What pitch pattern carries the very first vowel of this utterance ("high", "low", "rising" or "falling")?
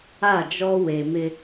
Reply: falling